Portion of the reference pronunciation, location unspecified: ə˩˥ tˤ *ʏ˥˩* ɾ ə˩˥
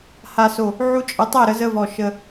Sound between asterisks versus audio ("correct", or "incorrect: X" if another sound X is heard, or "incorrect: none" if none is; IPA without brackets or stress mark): incorrect: ɛ˥˩